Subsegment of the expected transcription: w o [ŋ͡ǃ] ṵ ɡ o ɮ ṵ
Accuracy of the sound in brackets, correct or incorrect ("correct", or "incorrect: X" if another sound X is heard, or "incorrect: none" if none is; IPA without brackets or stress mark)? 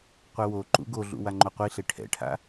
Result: incorrect: ǃ